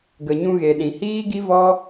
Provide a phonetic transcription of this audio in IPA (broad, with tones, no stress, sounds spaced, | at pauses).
ɡ ə˨ ɲ ũ˧ ɣ e˨ ɗ ĩ˨ h iː˦ ɡ i˦ v ɔ˦